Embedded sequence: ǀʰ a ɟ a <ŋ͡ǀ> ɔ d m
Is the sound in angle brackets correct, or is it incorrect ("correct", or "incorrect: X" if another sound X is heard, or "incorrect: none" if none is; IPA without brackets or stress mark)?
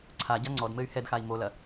correct